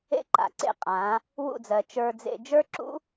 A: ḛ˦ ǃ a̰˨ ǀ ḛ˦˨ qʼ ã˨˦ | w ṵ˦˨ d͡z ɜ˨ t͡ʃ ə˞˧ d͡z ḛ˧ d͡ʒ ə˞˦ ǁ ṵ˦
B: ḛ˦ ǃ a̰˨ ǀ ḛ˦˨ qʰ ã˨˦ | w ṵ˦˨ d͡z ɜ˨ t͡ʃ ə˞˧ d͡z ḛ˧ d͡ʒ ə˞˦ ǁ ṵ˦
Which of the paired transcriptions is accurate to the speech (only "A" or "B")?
A